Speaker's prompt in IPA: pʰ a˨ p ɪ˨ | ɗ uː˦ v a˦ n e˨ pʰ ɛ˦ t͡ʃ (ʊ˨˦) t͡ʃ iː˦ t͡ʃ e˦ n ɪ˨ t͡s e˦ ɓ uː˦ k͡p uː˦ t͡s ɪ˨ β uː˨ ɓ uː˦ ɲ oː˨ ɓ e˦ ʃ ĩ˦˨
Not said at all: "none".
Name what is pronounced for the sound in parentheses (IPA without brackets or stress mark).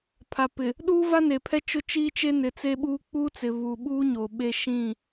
ʊ˦